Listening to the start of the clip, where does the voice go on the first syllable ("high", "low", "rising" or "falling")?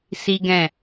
high